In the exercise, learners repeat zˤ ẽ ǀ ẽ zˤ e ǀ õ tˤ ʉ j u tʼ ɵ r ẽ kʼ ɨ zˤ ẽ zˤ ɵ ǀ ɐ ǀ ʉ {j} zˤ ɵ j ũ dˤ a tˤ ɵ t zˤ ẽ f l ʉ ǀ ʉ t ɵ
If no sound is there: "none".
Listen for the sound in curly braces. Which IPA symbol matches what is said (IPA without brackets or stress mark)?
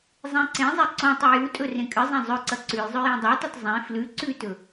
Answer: j